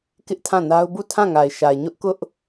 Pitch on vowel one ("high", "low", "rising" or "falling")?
high